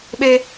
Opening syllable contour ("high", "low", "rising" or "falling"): high